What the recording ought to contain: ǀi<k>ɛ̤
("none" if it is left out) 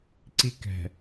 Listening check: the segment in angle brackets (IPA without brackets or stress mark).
k